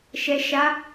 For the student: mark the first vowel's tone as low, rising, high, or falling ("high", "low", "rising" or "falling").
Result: low